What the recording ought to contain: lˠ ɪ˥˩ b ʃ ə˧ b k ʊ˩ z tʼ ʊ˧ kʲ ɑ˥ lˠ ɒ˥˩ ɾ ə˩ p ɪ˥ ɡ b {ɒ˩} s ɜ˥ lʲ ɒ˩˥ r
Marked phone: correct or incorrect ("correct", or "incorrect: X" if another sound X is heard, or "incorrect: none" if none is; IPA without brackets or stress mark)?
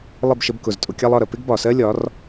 correct